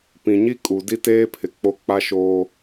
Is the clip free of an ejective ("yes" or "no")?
no